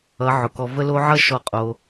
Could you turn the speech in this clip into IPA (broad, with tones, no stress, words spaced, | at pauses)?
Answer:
ʌ˨˦ ʕʊ˨kɔ˧ və˦ lo˦ ʕʌ˦ ʃɔ˦˨qʼo˧